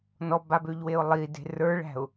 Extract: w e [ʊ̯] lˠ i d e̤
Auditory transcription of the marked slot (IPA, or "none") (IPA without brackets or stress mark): ʊ̯